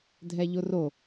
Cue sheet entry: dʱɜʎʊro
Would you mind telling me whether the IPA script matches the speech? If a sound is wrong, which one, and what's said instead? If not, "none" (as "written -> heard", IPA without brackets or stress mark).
ɜ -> ɛ